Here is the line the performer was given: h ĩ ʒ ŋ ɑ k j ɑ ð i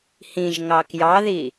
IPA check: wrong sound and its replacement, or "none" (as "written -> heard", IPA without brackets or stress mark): none